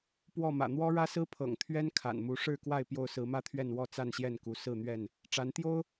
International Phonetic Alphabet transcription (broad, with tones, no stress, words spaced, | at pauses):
pwɔ˥˨mä̰˨˩ n̪wɔ˦ɻä˦sɹ̩˦ pʰɤ̰˨˩ŋ t̪ʰɥɛ˦nkʰa̰˨˩nmu˨˦ ʂɻ̩˥˨kwa˥˨ɪ̯ pjo˥˨ʊ̯sɹ̩˨˦mä˦t̪ʰɥɛ˥˨n wɔ˥˨ t͡sa˥˨nɕjɛ˥˨nku˨˦ sɹ̩˥˨n̪ɥɛ˥˨n | ʈ͡ʂa˨˦nt̪jo˦ʊ̯